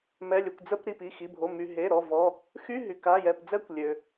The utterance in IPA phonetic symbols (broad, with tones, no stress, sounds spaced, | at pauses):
m ɛ˩˧˩ lʲ ø˩ kʷ d͡z ə˧˥˧ p ɾ i˩˧˩ p i˩˧˩ x i˩˧˩ bʱ o˩˧˩ m y˩ ɦ e˩˧˩ ɾ ɔ˩˧˩ v ɔ˩˧˩ | x y˧˥˧ ɦ y˩ k a˩˧˩ j ɛ˩˧˩ p d͡z ɛ˧˥˧ kʷ lʲ ø˩